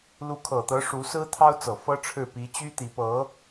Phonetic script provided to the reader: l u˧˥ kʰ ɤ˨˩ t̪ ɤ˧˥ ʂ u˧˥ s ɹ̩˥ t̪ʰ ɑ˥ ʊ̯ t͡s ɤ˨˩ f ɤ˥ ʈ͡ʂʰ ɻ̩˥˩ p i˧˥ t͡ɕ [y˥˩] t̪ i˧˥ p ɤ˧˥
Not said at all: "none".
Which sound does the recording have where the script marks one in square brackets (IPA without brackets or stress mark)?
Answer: y˥